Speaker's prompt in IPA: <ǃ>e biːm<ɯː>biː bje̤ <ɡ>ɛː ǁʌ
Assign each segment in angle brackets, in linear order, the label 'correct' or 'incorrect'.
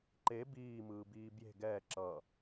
correct, correct, correct

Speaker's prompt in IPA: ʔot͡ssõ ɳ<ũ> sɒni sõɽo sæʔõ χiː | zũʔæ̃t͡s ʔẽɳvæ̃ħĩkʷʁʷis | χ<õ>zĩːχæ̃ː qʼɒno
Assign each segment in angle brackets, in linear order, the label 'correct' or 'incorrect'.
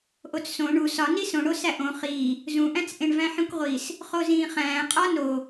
incorrect, incorrect

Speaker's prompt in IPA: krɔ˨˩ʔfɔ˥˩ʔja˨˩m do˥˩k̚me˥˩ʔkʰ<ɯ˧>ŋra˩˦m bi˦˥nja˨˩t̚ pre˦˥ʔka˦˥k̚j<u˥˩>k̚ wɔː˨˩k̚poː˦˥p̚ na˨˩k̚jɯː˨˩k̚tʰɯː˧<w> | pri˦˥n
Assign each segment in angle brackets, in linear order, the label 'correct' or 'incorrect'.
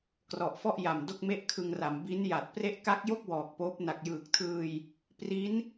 correct, incorrect, incorrect

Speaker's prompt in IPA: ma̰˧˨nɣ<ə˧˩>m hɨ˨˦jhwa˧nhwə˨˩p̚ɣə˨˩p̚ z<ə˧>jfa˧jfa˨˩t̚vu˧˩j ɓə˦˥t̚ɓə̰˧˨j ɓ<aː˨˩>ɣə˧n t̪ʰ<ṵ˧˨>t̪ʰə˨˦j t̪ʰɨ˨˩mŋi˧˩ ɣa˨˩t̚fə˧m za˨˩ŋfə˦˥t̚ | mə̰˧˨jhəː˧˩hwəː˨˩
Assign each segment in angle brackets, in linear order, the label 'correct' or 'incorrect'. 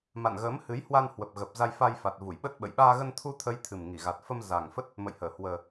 incorrect, incorrect, incorrect, incorrect

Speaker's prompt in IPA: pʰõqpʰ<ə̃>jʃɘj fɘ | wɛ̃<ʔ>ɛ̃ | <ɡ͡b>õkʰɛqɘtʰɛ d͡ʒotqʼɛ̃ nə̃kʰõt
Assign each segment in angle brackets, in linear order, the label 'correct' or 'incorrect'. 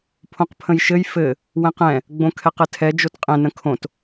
correct, incorrect, correct

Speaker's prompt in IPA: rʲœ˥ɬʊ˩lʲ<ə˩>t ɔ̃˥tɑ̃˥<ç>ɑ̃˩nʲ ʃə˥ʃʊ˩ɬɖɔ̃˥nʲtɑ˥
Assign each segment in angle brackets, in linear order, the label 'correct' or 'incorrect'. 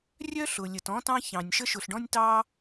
correct, correct

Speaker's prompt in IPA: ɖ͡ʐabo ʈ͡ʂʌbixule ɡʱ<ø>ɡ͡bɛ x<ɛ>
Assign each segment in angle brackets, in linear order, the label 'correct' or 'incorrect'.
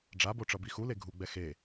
incorrect, incorrect

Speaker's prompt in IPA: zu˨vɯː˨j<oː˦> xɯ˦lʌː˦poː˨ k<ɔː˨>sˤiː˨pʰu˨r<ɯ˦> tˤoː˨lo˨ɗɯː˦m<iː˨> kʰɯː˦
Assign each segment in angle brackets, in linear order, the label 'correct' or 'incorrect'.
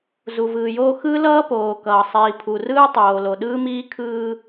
correct, incorrect, incorrect, incorrect

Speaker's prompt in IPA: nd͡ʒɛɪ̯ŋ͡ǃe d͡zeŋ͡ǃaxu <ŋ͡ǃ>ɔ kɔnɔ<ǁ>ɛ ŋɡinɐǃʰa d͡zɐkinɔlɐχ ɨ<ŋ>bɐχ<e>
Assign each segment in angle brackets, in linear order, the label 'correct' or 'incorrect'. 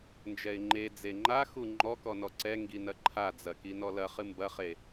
correct, incorrect, incorrect, correct

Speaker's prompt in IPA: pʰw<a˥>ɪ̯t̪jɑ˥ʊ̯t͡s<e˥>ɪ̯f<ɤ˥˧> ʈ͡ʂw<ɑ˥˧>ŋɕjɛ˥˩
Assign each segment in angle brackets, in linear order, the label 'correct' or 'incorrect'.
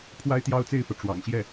correct, incorrect, incorrect, incorrect

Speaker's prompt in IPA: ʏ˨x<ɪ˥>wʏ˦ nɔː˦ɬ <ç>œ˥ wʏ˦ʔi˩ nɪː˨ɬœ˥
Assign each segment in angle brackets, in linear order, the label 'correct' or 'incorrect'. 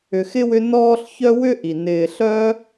correct, correct

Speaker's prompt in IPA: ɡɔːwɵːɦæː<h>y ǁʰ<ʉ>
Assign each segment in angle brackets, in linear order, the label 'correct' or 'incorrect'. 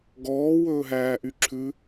incorrect, correct

